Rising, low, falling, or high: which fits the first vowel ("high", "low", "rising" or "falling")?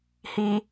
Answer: low